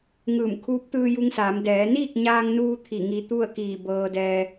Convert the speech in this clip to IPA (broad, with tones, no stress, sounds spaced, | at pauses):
ŋ ɯː˧˩ m kʰ uː˧˥ p̚ t̪ ɯː˧ j u˧ ŋ s aː˩˧ m d ɛː˩˧ n iː˥˨ k̚ ɲ aː˧ ŋ n uː˧ t̪ʰ i˧˩ ŋ i˧ t̪ u˥˨ ə̯ k iː˧˩ b ɤː˧ d ɛː˧